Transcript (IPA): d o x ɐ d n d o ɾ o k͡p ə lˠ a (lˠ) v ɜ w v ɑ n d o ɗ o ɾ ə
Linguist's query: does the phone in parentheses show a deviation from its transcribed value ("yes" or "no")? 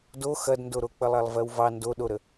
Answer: no